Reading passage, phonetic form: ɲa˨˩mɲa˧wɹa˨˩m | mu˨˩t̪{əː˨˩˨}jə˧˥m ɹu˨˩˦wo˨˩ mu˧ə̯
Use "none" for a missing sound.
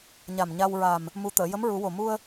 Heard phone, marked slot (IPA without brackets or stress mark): əː˨˩˨